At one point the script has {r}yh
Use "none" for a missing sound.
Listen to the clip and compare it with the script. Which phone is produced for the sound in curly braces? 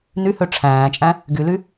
n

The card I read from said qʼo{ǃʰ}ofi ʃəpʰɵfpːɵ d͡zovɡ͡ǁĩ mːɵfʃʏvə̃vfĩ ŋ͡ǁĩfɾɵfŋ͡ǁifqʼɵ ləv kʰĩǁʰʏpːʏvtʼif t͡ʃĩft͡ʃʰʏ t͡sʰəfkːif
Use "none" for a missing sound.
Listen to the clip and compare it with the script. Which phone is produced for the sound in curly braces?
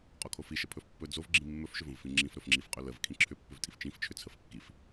kʰ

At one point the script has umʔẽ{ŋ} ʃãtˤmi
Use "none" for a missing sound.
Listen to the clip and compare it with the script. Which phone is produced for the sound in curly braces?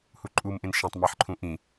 n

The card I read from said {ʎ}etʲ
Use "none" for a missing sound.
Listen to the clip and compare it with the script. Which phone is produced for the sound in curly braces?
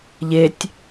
ʎ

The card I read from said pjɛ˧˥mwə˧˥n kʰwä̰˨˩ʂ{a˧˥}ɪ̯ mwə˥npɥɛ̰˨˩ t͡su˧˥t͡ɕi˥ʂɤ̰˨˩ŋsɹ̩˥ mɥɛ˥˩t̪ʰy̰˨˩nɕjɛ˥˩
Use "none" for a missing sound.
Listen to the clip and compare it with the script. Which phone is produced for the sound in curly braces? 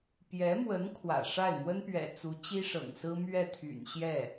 a˥˩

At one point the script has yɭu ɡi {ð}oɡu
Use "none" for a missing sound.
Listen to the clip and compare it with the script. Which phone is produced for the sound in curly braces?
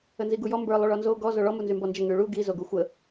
z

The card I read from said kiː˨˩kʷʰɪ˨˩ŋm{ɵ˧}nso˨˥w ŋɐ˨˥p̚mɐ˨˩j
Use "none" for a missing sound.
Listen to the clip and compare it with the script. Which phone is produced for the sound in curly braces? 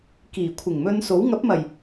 ɵ˧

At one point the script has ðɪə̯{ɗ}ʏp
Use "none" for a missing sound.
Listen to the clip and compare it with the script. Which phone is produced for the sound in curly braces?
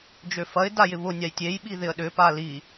ɗ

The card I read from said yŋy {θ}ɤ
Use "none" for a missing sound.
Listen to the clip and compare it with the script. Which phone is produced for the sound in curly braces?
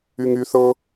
θ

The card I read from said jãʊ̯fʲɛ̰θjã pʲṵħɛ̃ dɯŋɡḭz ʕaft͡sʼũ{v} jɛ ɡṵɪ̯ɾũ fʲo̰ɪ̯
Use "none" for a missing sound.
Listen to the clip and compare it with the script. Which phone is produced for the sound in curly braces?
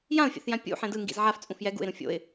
f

